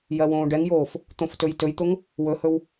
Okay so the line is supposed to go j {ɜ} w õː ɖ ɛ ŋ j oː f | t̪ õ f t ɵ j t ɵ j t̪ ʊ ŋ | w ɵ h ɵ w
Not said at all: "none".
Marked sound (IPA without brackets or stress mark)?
ɜ